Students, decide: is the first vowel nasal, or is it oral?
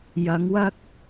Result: oral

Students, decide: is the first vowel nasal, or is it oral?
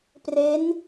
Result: oral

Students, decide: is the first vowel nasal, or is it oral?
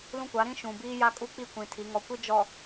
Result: nasal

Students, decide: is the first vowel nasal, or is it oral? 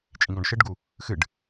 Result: nasal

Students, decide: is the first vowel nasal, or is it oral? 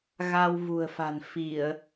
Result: oral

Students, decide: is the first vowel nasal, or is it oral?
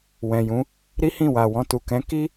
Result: nasal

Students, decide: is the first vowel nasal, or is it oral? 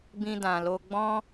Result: nasal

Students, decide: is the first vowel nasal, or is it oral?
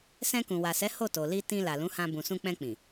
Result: nasal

